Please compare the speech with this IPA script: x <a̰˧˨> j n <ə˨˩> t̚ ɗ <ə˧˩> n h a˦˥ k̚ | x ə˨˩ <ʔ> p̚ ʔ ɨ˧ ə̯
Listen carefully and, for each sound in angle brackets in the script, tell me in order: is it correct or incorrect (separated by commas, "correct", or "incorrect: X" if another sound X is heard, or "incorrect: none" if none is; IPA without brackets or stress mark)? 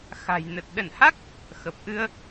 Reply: incorrect: a̤˨˩, correct, correct, incorrect: none